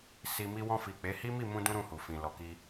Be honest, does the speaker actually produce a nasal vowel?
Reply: yes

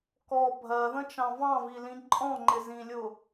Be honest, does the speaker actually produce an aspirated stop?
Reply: no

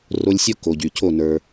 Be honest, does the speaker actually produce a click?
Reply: no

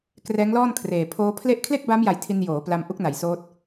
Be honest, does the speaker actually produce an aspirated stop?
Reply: yes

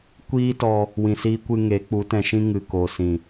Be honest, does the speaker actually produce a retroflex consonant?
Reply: no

